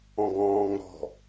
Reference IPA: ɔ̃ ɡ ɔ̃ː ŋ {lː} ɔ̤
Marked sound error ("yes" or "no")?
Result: yes